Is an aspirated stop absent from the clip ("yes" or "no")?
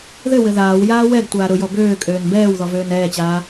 yes